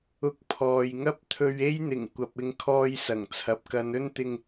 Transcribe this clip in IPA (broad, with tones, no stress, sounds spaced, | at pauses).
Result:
ʊ˧ k̚ pʰ ɔː˨ j ŋ ɐ˥ p̚ t̪ʰ ɵ˧ ɥ e˥ j n̪ ɪ˨˩ ŋ kʷ ɐ˨ p̚ ɪ˧ ŋ kʰ ɔː˧ j s ɐ˨˩ ŋ t͡sʰ ɐ˨˥ p̚ k ɐ˨˧ n ɵ˥ n t̪ ɪ˧ ŋ